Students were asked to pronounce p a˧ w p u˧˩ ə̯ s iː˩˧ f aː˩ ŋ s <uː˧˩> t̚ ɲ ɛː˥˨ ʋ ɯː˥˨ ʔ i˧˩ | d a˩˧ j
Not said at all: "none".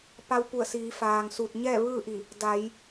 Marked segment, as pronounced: uː˧˩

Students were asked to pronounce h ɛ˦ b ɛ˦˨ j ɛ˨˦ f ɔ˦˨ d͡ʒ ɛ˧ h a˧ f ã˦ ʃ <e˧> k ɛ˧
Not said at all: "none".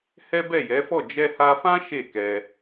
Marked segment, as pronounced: e˦˨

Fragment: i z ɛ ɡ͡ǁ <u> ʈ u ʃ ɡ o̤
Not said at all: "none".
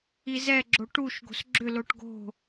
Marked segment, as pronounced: o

